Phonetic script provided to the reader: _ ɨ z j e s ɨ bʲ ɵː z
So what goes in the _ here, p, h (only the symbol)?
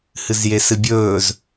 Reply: h